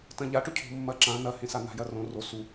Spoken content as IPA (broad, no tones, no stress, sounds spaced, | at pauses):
t ɐ̃ ʎ a ʈ ɵ cʰ o̤ mː ɐ ǁ ã n ɐ h ẽ s a n̪ a̤ j ɐ r õ r o s u